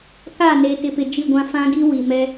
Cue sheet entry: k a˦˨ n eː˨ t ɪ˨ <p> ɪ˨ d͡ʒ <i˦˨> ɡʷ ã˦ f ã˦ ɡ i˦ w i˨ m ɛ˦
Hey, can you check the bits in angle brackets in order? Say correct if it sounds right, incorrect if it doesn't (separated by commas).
correct, correct